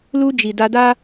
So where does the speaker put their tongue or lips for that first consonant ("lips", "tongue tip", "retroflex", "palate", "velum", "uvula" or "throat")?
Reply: tongue tip